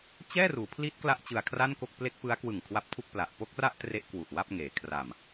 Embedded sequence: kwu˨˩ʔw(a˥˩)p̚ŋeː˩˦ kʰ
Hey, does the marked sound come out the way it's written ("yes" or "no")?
yes